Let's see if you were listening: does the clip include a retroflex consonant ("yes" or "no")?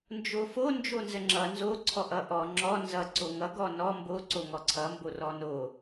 no